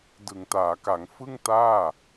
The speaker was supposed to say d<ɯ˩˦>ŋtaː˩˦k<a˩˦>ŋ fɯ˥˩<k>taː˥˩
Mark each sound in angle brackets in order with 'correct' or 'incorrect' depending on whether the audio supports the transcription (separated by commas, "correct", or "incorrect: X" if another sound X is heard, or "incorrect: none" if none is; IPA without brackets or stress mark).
correct, correct, incorrect: ŋ